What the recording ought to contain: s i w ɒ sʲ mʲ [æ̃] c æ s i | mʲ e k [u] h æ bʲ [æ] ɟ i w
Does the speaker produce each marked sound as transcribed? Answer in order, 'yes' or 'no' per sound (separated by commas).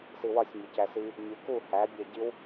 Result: no, yes, yes